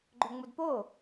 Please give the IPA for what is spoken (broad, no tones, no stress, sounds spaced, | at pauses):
ɡ͡ǃ ɵ ŋ͡m u d p o